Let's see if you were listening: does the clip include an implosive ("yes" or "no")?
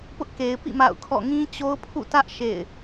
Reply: no